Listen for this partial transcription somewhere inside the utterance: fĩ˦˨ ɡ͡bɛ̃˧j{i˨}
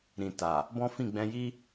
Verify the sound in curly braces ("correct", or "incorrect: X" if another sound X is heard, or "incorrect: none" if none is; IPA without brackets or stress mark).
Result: incorrect: i˦